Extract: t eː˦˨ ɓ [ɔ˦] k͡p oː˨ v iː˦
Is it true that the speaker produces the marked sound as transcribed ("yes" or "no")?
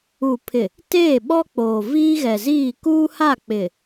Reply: yes